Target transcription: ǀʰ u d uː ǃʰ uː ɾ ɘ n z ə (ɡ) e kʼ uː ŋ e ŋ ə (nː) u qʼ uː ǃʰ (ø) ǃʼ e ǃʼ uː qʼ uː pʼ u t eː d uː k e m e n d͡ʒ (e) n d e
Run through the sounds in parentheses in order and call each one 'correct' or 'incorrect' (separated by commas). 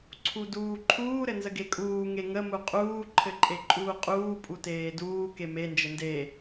correct, incorrect, incorrect, incorrect